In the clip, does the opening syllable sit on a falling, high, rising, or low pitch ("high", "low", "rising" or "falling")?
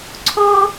high